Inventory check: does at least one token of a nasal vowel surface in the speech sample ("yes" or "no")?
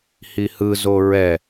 no